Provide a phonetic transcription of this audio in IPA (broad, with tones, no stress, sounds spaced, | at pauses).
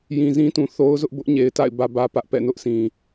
j ĩ˨ z ĩ˦ t ũ˨ θ o˦ ʊ̯ z ʊ˦ ʔ b ʊ˦ ʔ ɲ e˨ ɪ̯ t a̰˦˨ ɪ̯ b ä˦ b ä˦ p ä˦ ʔ p ɛ̰˦˨ n ʊ˦ ʔ sʰ ĩ˨